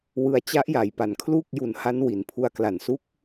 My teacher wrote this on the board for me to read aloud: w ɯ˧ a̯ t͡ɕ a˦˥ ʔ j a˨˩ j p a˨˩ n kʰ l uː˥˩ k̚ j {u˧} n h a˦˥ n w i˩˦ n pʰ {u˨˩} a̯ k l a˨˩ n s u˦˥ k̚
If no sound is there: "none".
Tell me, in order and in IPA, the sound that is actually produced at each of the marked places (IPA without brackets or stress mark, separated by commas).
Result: u˧, u˦˥